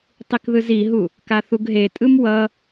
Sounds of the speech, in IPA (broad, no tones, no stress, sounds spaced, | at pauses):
tˤ i k ð ɯ z i ɦ u | k a θ u ɡ ɦ e tʼ ɯ m w ʌ